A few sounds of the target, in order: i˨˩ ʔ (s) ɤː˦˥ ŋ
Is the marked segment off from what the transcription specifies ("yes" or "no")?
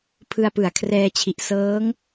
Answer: no